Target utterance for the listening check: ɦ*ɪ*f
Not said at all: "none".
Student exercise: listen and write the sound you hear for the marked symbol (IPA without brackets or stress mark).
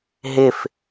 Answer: ɪ